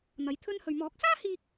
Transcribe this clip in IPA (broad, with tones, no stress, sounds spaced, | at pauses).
n̪ ɐ˨˥ j t̪ʰ ɵ˥ n h ɵ˧ ɥ m ɔː˨˥ k̚ s aː˥ h iː˧ k̚